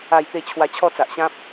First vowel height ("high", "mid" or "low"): low